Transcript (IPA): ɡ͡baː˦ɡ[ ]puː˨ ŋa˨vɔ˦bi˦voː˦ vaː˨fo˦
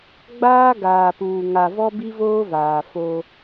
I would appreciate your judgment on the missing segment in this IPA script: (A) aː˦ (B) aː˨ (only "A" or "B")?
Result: B